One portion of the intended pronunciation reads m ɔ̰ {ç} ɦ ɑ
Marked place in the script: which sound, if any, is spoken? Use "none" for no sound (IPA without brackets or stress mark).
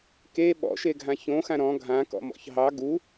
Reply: ç